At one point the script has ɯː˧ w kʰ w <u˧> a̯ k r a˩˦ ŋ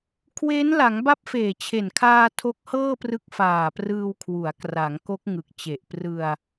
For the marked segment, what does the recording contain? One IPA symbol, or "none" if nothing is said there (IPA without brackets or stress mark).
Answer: u˩˦